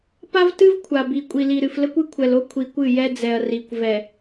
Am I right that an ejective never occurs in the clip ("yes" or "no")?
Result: no